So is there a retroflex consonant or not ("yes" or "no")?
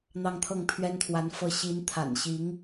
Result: no